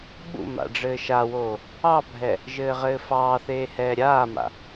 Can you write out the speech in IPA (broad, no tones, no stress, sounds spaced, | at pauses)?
ɓ ṵ m a̰ ɖ͡ʐ ɘː ʃ a w oː | ɑ bʱ ɛ | ʒ ɘː ʁ ɘː f ɑː θ eː h ɛː ɾʲ aː m a̰